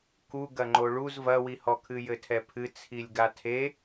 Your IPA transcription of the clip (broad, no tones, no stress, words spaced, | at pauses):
ku ɡɐŋ͡ǃoɭuz vɐwihɔkʰɨ jɘtʰɛpʰɨ t͡sʰilʲɡatʰe